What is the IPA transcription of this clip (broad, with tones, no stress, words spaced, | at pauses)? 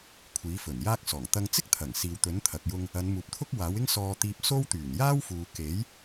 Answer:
kʷʰiː˨˥fɵ˨˩njaː˥k̚sɔː˨˩ŋ t̪ɐ˧ŋt͡sɪ˥k̚t̪ʰɐ˨˩ŋ siː˨wt̪ɵ˨˥nt̪ʰɐ˨k̚jʊ˧ŋ | ɐ˨˧nmuː˨p̚t̪ʰʊ˥k̚ waː˨˥wɪ˥ŋsɔː˧t̪iː˧p̚ so˥w t̪yː˨˩njaː˥wfuː˨ke˨˥j